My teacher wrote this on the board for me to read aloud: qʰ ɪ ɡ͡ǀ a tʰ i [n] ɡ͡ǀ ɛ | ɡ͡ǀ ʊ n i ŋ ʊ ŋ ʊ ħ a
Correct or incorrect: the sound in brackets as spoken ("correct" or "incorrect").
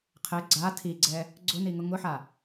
incorrect